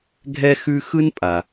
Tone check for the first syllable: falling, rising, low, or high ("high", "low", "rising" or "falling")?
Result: high